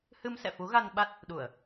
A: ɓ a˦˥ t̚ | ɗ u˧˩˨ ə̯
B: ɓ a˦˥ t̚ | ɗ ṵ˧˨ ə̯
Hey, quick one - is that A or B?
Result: A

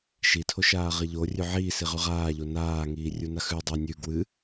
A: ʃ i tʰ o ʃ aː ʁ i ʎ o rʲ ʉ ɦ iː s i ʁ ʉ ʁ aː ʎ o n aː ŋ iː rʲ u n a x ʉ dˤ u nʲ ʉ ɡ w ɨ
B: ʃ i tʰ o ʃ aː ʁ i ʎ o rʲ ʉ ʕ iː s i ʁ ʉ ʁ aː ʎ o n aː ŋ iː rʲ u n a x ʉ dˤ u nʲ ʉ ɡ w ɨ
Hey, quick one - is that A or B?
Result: B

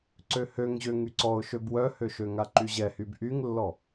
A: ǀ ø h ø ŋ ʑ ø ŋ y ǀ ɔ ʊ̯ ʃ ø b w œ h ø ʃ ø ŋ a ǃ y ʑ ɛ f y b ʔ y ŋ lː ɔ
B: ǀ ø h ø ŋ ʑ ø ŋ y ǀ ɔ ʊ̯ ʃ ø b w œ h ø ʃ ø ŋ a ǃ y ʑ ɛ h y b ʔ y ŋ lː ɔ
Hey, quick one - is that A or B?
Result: B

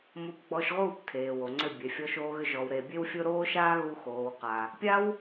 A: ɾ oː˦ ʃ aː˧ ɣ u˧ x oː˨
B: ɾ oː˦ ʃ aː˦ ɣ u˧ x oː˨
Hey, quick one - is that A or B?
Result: B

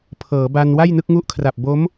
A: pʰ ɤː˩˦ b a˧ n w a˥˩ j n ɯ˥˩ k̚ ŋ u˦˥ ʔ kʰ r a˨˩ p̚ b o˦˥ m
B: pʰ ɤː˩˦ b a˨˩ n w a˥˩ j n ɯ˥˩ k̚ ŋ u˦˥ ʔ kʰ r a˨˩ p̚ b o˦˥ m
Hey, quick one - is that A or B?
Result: A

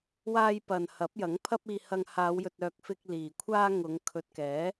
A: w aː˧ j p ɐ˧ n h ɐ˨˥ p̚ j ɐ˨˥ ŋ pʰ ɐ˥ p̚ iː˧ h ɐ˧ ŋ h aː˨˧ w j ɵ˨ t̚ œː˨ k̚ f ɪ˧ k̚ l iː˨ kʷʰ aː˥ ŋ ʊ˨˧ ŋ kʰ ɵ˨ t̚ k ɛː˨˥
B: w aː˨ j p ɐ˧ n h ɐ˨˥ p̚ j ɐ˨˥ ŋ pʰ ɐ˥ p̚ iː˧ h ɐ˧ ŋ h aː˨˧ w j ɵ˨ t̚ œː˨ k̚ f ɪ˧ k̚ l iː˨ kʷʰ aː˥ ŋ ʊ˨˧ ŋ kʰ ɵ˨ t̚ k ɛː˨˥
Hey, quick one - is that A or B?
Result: A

